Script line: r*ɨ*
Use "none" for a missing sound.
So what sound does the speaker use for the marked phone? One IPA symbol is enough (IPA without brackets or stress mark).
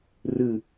ɨ